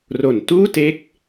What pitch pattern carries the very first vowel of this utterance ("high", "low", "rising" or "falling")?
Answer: low